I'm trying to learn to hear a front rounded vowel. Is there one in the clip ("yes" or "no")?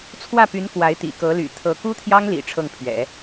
yes